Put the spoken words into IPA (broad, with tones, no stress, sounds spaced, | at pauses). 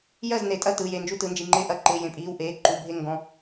j ɜ˥˨ z n e˩˧ tʼ ɐ˥˨ t ɯ˩˧˩ j e˩˧˩ n d͡ʒ u˥˨ t ɯ˩˧ n d͡ʒ i˩˧˩ ŋ͡ǃ ɪː˥˨ ʔ ɐ˥˨ ǃ ɪː˩˧˩ j ẽ˩˧˩ pʼ iː˩˧˩ w ʔ eː˩˧˩ ǃ u˩˧˩ bʱ e˥˨ ŋ ɡ ɔ̃˩˧˩